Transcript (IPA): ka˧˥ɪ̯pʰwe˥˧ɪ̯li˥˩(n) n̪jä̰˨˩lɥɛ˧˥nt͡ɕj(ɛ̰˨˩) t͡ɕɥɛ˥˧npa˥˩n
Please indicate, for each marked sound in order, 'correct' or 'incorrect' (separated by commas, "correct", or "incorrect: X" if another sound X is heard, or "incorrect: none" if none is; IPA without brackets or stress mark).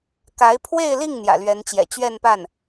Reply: incorrect: ŋ, correct